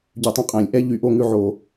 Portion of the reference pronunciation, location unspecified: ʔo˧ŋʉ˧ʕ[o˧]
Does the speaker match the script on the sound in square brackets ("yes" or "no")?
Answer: no